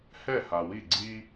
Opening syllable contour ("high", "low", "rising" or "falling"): falling